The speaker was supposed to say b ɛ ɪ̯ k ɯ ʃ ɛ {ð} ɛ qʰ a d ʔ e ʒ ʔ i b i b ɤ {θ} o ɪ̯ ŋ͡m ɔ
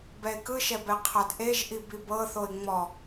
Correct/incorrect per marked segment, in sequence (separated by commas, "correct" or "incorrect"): incorrect, correct